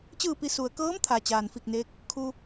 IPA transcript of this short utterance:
t͡ɕ ɯː˥˨ p i˧ s u˩ ə̯ k ɤː˧˥ m t̪ʰ a˩ t͡ɕ aː˩ n f i˧˩ k̚ n eː˧ k̚ | kʰ u˧

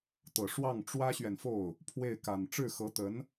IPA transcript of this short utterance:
t̪ ɤ˨˩ ʂ w ɑ˥˩ ŋ ʈ͡ʂ w ä˥ ɕ ɥ ɛ˨ n f o˥˩ ʊ̯ | pʰ w e˥˩ ɪ̯ k a˨˩ n ʈ͡ʂ ɻ̩˥˩ x ɤ˧˥ t̪ ə˧˥ n

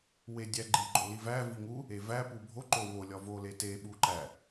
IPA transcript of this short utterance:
w e dʲ æ ɡ͡ǃ i ɡ͡ǃ o l i v æ v i ŋ u | e v æ p u bʱ o ǃ o w o lʲ ɒ v o l e t e ɓ u ǃ æ

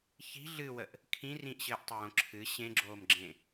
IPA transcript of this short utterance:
ç i̤ ɮ ɨ w ə ʔ | kʰ ĩ r ĩ ʔ ɕ ɘː ʔ tˤ ɘ w õ ǁʰ ɨ ɕ ẽ ɡ͡ǁ oː m ɡ͡ǁ ẽ

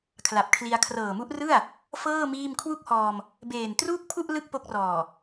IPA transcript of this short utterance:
kʰ l a˨˩ p̚ kʰ l i˧ a̯ kʰ r ɤː˨˩ m u˦˥ ʔ r ɯ˥˩ a̯ | f ɤː˥˩ m iː˥˩ m kʰ w u˥˩ k̚ h ɔː˧ m | b eː˨˩ n t r uː˥˩ k̚ pʰ u˥˩ ʔ l ɯ˥˩ k̚ p o˦˥ k̚ r ɔː˨˩

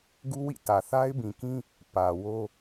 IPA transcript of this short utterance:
ɡ u˦ w ḭ˦˨ t ä˨ θ a˦ ɪ̯ b ĩ˨ k ĩ˦ | p ä˨ w o˦

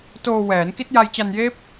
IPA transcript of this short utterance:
t oː˧ w ɛː˩˦ n k i˦˥ t̚ j a˧ j t͡ɕ a˧ n j eː˦˥ p̚

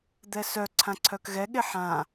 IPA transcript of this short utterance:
d̪ ɛ s œ ǀʰ ã ǀʰ œ k ɣ ɛ ɠ e ħ ã

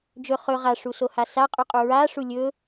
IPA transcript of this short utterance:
d͡ʒ ɵ χ ɵ ʁ a ʂ u s o h a s a qʼ u qʼ u ɹ a ʂ u lʲ ɵ

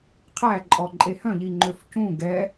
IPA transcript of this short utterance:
qʰ æ ǃʼ ɔ ǃʼ e h œ̃ ʎ i ŋ͡ǃ ø f c ũ ɡ ɛ

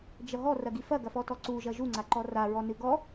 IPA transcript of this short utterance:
d͡ʒ ɐ ɦ ɔ r ɐ ɡ i f ɐ ɡ ɐ f ɔ t ɔ ǀ u ʒ ɐ ʒ u ŋ͡ǀ a ǃ ɔ r a ɹ ɔ n ɨ ɡ ɔ

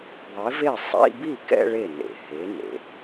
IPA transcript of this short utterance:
ðˤ e˨˥ v e˥˩ sˤ ḭ˧˥˧ b i˥˩ k ɛ̰˥˧ ɭ e˥˩ n ḛ˨ h e˨˥ n ḛ˨

